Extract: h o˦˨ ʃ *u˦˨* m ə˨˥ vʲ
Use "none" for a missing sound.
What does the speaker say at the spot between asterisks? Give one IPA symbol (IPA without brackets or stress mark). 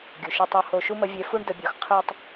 u˥